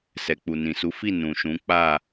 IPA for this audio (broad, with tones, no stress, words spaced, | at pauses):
sɛ˨k͡pu˨nĩ˨su˨˦ fi˦˨ nũ˨ʃũ˨˦ k͡pa˦˨